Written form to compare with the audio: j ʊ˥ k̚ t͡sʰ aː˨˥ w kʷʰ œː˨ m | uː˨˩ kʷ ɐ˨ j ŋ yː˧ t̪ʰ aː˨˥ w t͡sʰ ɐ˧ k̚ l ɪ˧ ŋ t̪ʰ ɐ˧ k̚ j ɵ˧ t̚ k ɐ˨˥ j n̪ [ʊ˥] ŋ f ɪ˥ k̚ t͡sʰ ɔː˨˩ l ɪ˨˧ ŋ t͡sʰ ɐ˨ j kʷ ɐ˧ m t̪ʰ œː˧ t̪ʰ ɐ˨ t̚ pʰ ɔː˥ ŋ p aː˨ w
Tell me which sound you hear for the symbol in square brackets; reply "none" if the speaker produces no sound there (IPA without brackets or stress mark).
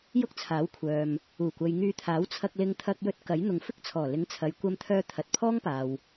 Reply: ʊ˨